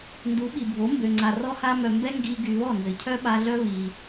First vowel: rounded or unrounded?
rounded